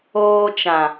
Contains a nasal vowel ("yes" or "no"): yes